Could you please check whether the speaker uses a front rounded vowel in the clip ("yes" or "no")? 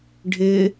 no